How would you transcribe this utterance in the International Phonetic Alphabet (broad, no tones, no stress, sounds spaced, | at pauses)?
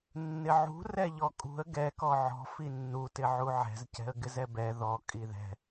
nː ɪ ʕ ṳ r ɛ ʎ ɔ kʼ ṳ ə̯ ɡ ɛ k ɔ ʕ ɔ̤ f i nː u t ɪ ʕ u ʕ ɛ̤ z c ɛ̤ ə̯ ɡ ɪ z ɛ b ɛ ð ɔ kʼ i ð ɛ̤